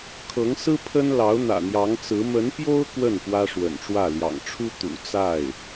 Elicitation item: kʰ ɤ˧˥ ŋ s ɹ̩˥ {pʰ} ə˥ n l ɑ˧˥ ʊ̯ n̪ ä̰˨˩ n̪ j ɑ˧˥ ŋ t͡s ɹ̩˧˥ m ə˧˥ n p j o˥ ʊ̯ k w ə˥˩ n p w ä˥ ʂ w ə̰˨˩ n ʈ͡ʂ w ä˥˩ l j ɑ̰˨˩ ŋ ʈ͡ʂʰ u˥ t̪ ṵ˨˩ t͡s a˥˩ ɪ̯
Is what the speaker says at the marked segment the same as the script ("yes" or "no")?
yes